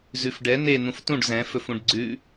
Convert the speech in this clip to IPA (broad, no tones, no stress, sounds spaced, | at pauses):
z ʉ f ɖ ɛ n e n̪ ũ f t ũ ɖ z ɛ̃ f ɵ f ũ ɖ ɡ͡ǀ ʉ